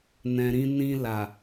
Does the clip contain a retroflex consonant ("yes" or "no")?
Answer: no